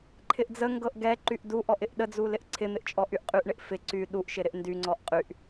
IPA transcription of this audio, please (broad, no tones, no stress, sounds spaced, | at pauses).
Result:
ǃʰ ɪ ʔ d͡z ə ŋ ɡ ɤ ʔ ɡ ɛ ǃ y ʔ d u ʔ ɔ ʔ ɪ ʔ ɗ ə d͡z u l ɪ ʔ ǀʰ ɪ n̪ ɪ ʔ t͡ʃʼ ɔ ʔ y ʔ qʼ y ʔ ɳ ɪ ʔ f ɪ ǀ y ɗ u ʔ ʃ ɪ ɾ ɪ ʔ n d y ŋ͡ǀ ɔ ʔ qʼ y ʔ